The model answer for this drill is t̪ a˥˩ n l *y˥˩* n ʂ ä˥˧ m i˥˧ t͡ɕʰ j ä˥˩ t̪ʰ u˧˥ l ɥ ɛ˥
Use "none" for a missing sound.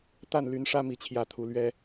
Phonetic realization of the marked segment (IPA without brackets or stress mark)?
y˧˥